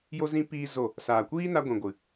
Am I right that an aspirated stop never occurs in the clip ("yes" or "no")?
yes